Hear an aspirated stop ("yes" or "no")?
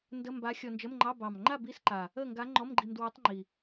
no